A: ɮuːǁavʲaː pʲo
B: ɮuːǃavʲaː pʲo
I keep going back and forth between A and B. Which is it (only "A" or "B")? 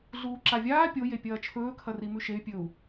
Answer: A